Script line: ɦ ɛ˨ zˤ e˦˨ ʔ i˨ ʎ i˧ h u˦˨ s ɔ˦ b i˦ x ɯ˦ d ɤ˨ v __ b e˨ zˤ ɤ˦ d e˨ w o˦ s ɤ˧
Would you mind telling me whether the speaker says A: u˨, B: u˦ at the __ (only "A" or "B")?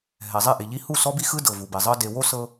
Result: A